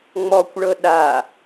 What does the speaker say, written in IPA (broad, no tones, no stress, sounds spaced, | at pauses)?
ŋ͡m ɔ kʷ ɭ ɤ ɗ a